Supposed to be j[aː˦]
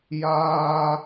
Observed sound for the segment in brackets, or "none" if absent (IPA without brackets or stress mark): aː˦